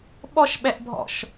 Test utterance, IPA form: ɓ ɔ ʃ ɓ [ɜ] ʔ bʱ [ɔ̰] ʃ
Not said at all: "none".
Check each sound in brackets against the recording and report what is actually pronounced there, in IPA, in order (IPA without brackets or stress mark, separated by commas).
ɛ, ɔ̰